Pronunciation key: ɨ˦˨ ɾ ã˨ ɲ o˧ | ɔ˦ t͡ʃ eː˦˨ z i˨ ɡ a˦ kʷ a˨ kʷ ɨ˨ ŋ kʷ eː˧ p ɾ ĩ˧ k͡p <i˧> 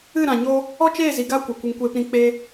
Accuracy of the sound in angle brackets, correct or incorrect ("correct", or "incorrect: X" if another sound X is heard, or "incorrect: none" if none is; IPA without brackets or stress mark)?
incorrect: e˧